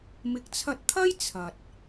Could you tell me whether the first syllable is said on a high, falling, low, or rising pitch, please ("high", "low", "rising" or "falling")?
low